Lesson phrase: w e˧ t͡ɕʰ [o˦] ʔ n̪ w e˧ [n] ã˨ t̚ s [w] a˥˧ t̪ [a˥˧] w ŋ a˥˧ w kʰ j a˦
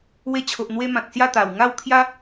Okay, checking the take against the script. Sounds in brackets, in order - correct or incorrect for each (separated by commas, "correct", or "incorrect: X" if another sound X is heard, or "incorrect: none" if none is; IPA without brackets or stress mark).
incorrect: o˨, incorrect: m, incorrect: j, incorrect: a˨˩